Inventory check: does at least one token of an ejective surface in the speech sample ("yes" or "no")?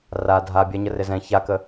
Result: no